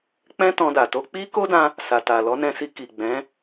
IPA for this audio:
k͡p ɛ̃˦ t ɔ̃˧ d a˨ t o˧ k͡p i˦ k o˦ d ã˧ | s a˨ t a˨ l ɔ˨˦ n ɛ̃˧ s i˧ k i˨ ɡ͡b ɛ̃˨˦

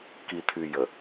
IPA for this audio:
k i˨ t̪ʰ y˨ j ə˨

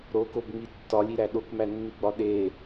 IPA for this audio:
ɾ o k o b ŋ͡m i tː ɒ lʲ i ɾ æ ɗ o k m æ nː i ɡ͡b ɒ ɗ e

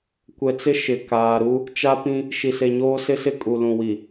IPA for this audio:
kʷ ɛ˨ t͡s ɪ˦ ʃ ɪ˨ k aː˨ ɾ u˦ | t͡ʃ a˦ p ĩ˦ | ʃ i˨ s e˨ ɲ oː˦ s ɪ˦ s ɪ˦ kʼ u˨ l ũ˨ w i˨

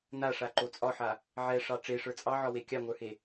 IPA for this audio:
n a ʂ a ǃ o t͡sʼ ɒ ħ a | ʕ ɛ ʂ ɑ ʈ͡ʂ e ʂ ə˞ t͡sʼ ɑ ʕ ɒ w e kʲ ɑ ŋʷ ə˞ h e

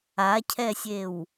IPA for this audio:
a cʰ ɛ sʲ e w

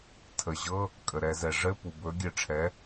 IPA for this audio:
tʰ ə˩ ʑ ɤ˧˥˧ | kʼ ə˩ ɾ ɛ˧˩˧ z ɛ˩ ʐ ɘ˧˥˧ p u˩ b ɵ˩˥ ɡʲ ɘ˧˩˧ ʈ͡ʂʰ ɛ˩˥

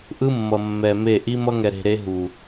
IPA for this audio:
ʔ ɯ˦ mː ʌ˨ mː ɛ˨ m e˦˨ ʔ i˦ m ʌ˦ ŋ ɛ˨ ɾ e̤˨ ɾ e˦ ɦ u˨

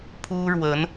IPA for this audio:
pʰ u˥ ɻ w ə˧˥ n

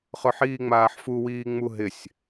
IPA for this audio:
χ ʊ ħ iː ŋ͡m aː ħ f u w iː ŋ͡m u ɦ ɪ sʲ

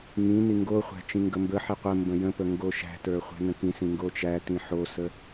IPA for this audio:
ŋ ĩ n i ŋ ɡ o χʷ æ̤ t͡ʃ ĩ ŋ ɡ ə m b ə ħ i qʷ ə m b ə̃ j ə̃ p ə ŋ ɡ o ʃ æ̤ t ə˞ χʷ æ̤ n ə̃ k ĩ s ĩ ŋ ɡ o t͡ʃ æ t ĩ ħ o s ə

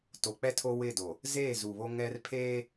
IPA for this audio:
t o˨ k͡p ɛ˦ tʰ o˦ w ɪ˦˨ d o˨ | z eː˦˨ z u˨ β o˦ ŋ ɛ˦ r pʰ eː˦

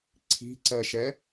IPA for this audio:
ǀʰ i̤ ǀ ɜ ʃ ɛ

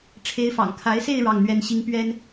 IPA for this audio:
ʈ͡ʂʰ e˧˥ ɪ̯ f ɑ̰˨˩ ŋ kʰ a˧˥ ɪ̯ s e˥˧ ɪ̯ ɻ ɑ˥˩ ŋ n̪ ɥ ɛ˥ n ɕ i˥ ŋ p ɥ ɛ˥ n

